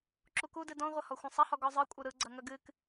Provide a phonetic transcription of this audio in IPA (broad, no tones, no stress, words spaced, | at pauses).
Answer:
ǁukudɨ dɔ̃ʁʷɐhɔ xʷɐ̃sˤɐhɔ ɡɔzˤɯkʷʼɨ ɾɯɡ͡ǀɐ ŋɐɡɨk